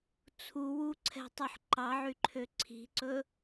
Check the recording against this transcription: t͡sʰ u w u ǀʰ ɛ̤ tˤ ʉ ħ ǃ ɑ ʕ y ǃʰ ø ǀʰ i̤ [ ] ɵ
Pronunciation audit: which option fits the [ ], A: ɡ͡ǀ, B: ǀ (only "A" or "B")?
B